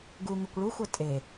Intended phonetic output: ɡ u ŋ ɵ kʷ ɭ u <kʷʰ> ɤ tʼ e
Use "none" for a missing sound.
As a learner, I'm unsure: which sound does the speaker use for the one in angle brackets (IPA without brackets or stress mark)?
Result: xʷ